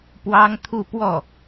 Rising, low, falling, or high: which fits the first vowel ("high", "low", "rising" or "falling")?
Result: high